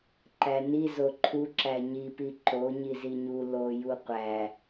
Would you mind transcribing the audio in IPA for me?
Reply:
ǃ æ n i z o ǃʰ u ǁ æ ɲ i p i ǃ o ɲ i z i ɲ u l o j u qʷ æ

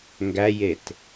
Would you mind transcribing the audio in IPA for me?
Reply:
ŋ ɡ æ j e t

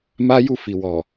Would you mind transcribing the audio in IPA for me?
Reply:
m a˦ j u˦˨ f i˨ w ɔ˨

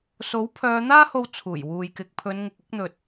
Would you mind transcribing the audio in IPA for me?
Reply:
s o˨˥ w pʰ œː˨˧ n̪ aː˥ h o˧ w t͡sʰ uː˨˩ j w uː˨ j k ɪ˨ k̚ pʰ ɵ˨˧ n ŋ ɪ˨ k̚ ɪ˨˥ k̚ n̪ ɵ˨ t̚

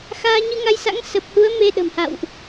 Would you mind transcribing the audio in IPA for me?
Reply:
x aː˧ ɲ ɨ˧ ŋ a˧ j s a̰˧˥ ŋ s ə˨˩ p̚ h u˨˦ ə̯ m e˧ ɗ ə̤˨˩ m h a̰˧˨ w ʔ

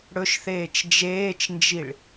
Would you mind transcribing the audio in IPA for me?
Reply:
ɽ ɵ ʃ θ eː t͡ʃ d͡ʒ eː t͡ʃ n d͡ʒ i ɭ

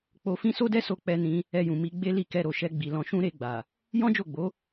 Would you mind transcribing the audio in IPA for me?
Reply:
k͡p o˧ f ĩ˦ s o˦ d ɛ˦ s o˧ k͡p ɛ˧ n ĩ˧ | ɛ˧ j ũ˨ m i˧ ɡ͡b e˦ l i˦˨ k ɛ˧ ɾ o˨ ʃ ɛ˧ ɡ͡b i˨ l ɔ̃˧ ʃ ũ˦ ɾ e˧ ɡ͡b a˨ | j ɔ̃˦ d͡ʒ o˦˨ ɡ͡b o˨˦

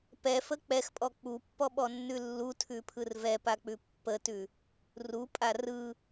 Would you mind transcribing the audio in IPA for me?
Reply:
p ɛ f ə k͡p ɛ x pʼ ɔ k͡p u pː ɔ ɓ ɔ nː ʉ lː u tʰ ʉ pʰ ɯ r v ɛ p a k͡p ʉ pː ə t ʉ | r u pʼ a r ɯ

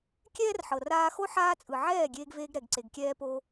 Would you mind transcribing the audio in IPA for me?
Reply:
kʲ ɛː˦ r ħ ɤ˨ r aː˧ x o˦ ħ aː˦ t͡sʼ ɯ˨ ʕ ɛː˦˨ ɡʲ eː˧ ɡ v eː˧ ɡ ɾ ɛ˨ ɡ ǀ e˨ ɡ kʲ ɛː˧ p o˧

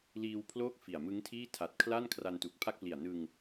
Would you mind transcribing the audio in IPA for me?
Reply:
l iː˧ w pʰ l oː˥˩ k̚ f i˨˩ a̯ m ɯ˦˥ ŋ tʰ iː˥˩ tʰ a˨˩ t̚ kʰ l a˥˩ n kʰ r a˧ n t u˨˩ k̚ pʰ a˥˩ k̚ p l i˨˩ a̯ n ɯ˧ ŋ

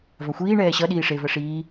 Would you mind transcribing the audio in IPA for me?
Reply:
v a xʷ iː ɳ ɛː ɕ ʌ ɗ iː ʂ e v ɜ ʂ iː

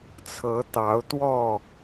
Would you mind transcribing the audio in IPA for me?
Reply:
t͡sʰ ɤ˨˦ t̪ ɑ˨˦ ʊ̯ t̪ w ɔ˥˨

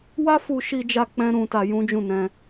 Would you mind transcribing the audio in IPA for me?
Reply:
w a˦ f u˧ ʃ i˧ d͡ʒ a˧ k͡p ɛ̃˦ ɾ ũ˧ t a˧ j ũ˦ d͡ʒ ũ˦˨ n ɛ̃˧

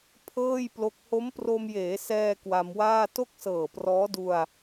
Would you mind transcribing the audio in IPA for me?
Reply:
pʰ ɤː˥˩ j p l o˦˥ k̚ h o˦˥ m p r o˧ m j eː˩˦ s ɛː˧ k w a˧ m w aː˥˩ t o˥˩ k̚ s ɤː˨˩ p r ɔː˦˥ d u˧ a̯

